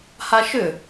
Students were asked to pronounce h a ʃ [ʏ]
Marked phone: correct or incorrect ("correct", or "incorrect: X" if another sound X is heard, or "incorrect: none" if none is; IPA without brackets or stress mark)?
correct